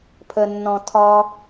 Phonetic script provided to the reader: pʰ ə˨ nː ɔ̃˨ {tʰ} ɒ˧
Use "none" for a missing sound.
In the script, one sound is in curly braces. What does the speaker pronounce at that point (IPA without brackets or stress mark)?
tʰ